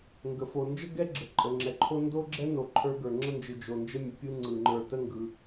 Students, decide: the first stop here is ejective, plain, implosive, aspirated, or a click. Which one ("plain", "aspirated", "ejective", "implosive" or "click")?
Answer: plain